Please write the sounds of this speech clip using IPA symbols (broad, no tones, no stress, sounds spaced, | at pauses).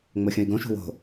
ŋ͡m o xʲ õ i̯ ɡ õ ʃ ṳ w o̤